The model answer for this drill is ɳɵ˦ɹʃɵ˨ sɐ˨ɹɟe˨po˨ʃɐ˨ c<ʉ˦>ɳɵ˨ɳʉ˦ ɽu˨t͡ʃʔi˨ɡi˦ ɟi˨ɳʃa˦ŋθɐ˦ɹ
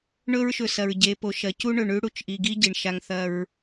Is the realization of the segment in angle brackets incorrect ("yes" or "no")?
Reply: yes